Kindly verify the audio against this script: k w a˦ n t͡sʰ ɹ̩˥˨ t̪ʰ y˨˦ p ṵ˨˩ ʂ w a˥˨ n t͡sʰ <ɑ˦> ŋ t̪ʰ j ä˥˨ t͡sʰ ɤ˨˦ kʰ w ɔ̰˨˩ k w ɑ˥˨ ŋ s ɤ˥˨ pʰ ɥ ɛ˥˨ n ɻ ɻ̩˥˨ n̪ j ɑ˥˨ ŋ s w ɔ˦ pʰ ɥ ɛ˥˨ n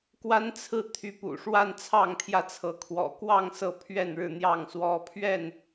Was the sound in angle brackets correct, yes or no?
no